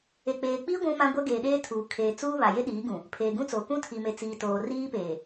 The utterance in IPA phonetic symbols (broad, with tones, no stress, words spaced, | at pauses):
e˨k͡peː˨k͡piː˦ ɡʷũ˦mã˦ɡʷɛ˦ ɡeː˨ɗeː˦ tʰuː˨ kʰeː˨t͡suː˦ βa˨je˦ɗiː˨˦ɡũ˨ | pʰeː˨ɡũ˦t͡soː˨ kũ˦tʰi˨me˨ t͡siː˨toː˨ riː˦peː˨